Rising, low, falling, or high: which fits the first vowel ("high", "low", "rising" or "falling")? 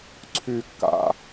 low